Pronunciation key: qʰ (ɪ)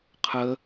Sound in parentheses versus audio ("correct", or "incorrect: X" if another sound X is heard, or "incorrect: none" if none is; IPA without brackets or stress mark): incorrect: ə